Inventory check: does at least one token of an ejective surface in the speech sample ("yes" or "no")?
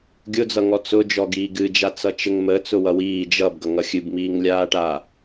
no